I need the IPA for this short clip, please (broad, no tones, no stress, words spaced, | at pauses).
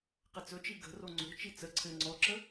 qɘt͡sɵt͡ʃi ɡə̤ro ŋ͡ǀo̤t͡ʃi t͡sə ǀʰɘ ŋ͡ǀɔǁə